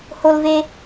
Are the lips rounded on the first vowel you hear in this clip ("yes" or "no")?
yes